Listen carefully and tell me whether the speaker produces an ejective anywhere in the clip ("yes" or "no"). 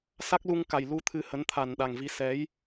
no